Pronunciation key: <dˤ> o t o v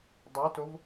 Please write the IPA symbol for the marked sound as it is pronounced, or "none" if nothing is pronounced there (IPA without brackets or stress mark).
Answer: dˤ